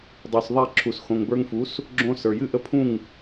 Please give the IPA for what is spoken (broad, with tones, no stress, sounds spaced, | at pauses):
dˤ u˩ s ðˤ ɛ˥˩ ǁʰ u˩ s x õ˩ ŋ b ə˞˧ ŋ f u˩˥ s | ɡ͡ǁ õ˧ s ə˞˩ j ɨ˥˩ ʔ ə˥˩ pʰ ũ˥˩ ŋ